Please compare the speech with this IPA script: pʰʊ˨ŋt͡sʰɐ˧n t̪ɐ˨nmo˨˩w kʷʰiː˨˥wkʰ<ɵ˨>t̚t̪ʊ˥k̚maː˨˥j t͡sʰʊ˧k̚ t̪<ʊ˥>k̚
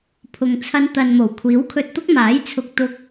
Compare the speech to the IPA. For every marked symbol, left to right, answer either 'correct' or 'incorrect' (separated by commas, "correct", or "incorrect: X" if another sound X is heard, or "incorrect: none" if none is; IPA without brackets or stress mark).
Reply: incorrect: ɵ˧, correct